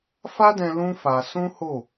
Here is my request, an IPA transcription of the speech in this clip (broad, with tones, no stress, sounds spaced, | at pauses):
f a˦ d ɛ̃˧ l ũ˦ f a˧ s ũ˦ h o˦˨